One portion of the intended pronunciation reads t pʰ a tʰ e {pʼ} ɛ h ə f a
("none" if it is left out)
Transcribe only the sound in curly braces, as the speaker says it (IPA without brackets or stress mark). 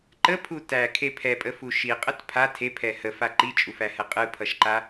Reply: pʰ